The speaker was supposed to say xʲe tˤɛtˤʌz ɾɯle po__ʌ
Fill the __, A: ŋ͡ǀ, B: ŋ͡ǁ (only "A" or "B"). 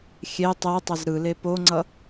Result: A